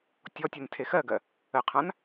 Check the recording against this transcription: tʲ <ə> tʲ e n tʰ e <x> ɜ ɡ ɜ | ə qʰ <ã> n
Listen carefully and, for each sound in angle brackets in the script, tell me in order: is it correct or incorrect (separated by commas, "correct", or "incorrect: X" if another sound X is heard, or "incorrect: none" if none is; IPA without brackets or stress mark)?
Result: incorrect: ɔ, correct, correct